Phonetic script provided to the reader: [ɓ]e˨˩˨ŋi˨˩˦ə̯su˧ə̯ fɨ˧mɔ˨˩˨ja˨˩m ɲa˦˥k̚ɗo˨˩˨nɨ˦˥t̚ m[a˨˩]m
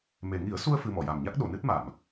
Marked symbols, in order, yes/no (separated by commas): no, no